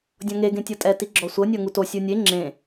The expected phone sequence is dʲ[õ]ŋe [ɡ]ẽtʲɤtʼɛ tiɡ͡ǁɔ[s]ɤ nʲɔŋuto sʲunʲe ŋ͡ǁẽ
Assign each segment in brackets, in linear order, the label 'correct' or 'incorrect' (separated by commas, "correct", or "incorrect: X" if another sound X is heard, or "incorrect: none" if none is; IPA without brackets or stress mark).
incorrect: ɔ̃, correct, incorrect: sʷ